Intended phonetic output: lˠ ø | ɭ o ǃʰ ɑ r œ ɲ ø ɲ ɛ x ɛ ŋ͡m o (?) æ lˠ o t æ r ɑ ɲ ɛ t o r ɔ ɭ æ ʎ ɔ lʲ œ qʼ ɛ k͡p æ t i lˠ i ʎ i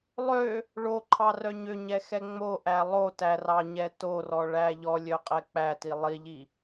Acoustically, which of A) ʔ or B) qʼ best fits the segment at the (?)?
A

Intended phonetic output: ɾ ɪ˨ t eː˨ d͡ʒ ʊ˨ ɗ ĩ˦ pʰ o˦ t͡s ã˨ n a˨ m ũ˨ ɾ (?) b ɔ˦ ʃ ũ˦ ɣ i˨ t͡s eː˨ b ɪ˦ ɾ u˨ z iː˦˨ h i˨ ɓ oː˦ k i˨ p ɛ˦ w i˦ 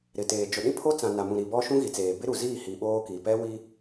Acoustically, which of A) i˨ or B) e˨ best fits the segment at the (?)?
A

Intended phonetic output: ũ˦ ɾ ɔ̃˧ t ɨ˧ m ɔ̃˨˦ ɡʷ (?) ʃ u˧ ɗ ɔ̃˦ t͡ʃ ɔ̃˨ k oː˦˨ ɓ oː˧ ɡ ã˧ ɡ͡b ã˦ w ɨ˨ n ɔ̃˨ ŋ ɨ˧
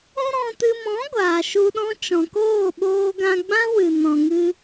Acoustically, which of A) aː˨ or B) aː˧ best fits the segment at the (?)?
A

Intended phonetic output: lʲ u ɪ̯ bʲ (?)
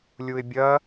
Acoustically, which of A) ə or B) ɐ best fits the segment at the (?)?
B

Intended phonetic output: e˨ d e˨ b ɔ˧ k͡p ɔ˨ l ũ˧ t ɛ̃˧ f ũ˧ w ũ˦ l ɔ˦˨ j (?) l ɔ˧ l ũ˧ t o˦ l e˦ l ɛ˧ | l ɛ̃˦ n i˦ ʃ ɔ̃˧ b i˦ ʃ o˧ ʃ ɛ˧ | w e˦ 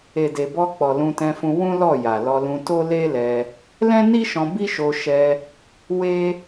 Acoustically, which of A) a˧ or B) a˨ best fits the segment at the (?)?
B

